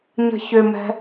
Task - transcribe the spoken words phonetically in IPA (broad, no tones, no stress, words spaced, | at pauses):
ɲə̤çʏmɛ̤